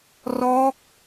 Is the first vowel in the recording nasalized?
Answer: no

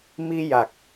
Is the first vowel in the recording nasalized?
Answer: no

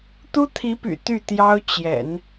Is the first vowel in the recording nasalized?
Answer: no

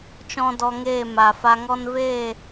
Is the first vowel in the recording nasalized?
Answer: yes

